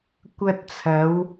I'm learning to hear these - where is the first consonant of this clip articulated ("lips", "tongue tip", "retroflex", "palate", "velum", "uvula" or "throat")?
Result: velum